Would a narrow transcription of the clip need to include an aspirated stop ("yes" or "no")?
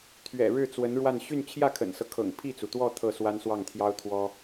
yes